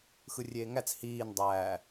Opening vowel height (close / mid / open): close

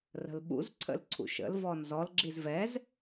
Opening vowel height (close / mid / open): mid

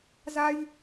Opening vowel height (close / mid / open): open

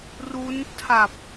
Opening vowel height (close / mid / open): close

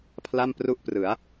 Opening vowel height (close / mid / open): open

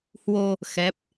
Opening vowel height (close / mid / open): mid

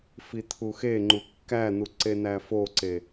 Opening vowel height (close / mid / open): close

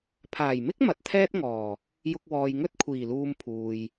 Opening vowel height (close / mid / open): open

